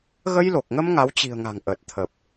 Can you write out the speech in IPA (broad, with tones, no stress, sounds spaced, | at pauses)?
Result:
ɣ ə˧ j l o˨˩ k̚ ŋ ə˧ m ŋ a˨˦ w t͡ɕ i̤˨˩ ə̯ ŋ a̤˨˩ ŋ ʔ əː˨˩ t̚ t̪ʰ ə˨˩ p̚